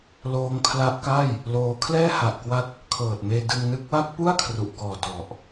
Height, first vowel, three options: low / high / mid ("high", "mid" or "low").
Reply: mid